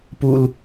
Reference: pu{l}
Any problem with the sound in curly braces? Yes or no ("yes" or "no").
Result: no